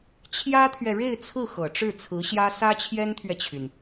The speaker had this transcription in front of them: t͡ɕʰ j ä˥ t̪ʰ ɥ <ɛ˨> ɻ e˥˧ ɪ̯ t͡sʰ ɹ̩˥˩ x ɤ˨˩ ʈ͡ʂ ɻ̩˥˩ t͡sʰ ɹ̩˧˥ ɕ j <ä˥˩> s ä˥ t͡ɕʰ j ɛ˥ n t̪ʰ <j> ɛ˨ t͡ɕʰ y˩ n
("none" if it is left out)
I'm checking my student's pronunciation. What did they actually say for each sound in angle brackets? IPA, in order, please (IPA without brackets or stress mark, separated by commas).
ɛ˨, ä˥, ɥ